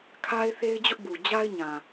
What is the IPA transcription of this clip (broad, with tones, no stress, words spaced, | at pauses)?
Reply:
kʰa˦ɪ̯θe˦ɪ̯d͡ʑʊ˦ʔbu˨ d͡ʑa˦ɪ̯ɲã˨